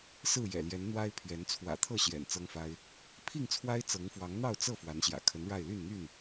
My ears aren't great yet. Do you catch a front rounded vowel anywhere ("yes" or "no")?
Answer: yes